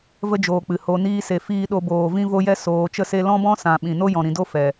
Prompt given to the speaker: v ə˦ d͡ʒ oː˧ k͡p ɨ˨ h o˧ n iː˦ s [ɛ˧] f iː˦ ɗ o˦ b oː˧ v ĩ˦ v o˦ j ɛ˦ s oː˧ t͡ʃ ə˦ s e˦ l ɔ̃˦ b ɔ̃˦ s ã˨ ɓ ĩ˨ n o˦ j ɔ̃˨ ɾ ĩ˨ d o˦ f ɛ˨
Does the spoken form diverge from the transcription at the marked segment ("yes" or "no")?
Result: yes